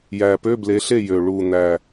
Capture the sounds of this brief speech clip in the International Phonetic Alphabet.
jæ˨˩pø˧˥˧ble˨˦ɬe˥˩ jø˨˩ ɭu˨˩n̪æ˨˩

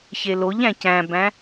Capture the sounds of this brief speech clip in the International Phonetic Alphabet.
çeloʎæ̃ cæ̃bæ̃

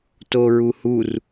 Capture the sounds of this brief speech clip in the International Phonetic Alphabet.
toɹuhur

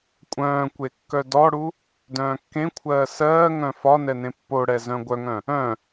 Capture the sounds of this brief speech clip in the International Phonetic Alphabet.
kʷʼœ̃ːkʷe kːœdɔɽu | dœ̃ːkːẽkʷʰɜː sɜːŋœ̃ fɒ nɛnẽpːoɽɛ zœ̃ɡʷœŋœ̃ | œ̃

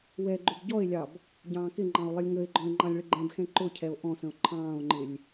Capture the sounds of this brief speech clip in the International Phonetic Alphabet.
wɛ ɡ͡ǃʊbɟɔe̯lʲɑb | ɟɑ̃ːkɪŋ͡ǃɑ̃o̯ lˠɪlʲŋəe̯ɡ͡ǃɔ̃e̯ ŋ͡ǃɑ̃lʲɭəɡ͡ǃɛ̃bxɛ̃ ǃʊcʰɛo̯ ʔɔ̃sə̃o̯ ǃʰɑ̃ːo̯ŋ͡ǃɪlʲ

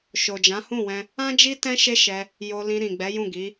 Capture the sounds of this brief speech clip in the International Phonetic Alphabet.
ʃo˨d͡ʒã˨˦hũ˦˨wɛ̃˧ | ã˦ d͡ʒi˦tɛ̃˦ ʃe˦ʃɛ˧ | jo˧lĩ˧ɾĩ˨ ɡ͡bɛ˨˦jũ˦˨ɡi˨˦

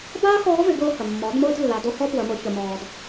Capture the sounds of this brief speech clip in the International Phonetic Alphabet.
baː˥ xɔː˧˥vɪ˩˧ɡʊː˧ hə˩mːɔ˩˧dmʊː˧d lːa˩˧do˧˥ hɔ˥pwə˩˧mʊ˩˧ çə˩mɔː˩d

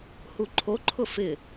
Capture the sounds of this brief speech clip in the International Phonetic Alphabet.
huǃʰoǃʰʊ fɪ

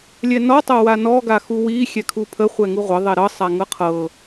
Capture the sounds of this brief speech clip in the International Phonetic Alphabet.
lʲɛnɔ tˤɤwanɔ ɡaxuwi xʲɛkʰupʰə χʷɛŋuʁʷə ðˤɛɾɤ sˤaŋɤqʰɤ

